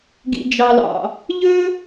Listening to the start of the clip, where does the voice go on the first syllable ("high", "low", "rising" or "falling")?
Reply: low